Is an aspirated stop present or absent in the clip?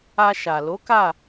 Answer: absent